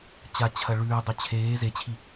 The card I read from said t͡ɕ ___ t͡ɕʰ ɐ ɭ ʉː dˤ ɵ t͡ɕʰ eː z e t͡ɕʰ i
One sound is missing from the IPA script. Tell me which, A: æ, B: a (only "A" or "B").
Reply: B